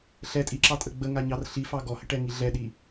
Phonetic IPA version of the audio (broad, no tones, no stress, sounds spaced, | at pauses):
ɬ ɛ tʼ i ǁ ɑ tʼ ə ɡ͡b ə ŋ a ɲ ɑ r ɬ i f ɑ ɡ ɔ h ə ʈ ɛ ŋ i ɮ ɛ ɗ i